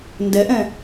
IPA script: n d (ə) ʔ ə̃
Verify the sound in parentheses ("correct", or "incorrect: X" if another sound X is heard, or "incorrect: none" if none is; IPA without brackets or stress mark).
correct